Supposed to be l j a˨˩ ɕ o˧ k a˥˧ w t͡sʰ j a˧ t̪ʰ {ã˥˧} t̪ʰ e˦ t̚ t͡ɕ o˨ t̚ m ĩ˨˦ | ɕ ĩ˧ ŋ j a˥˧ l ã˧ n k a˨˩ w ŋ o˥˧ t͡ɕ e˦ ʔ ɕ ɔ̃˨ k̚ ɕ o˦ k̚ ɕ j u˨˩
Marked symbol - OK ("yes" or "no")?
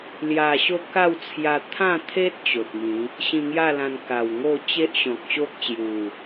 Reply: yes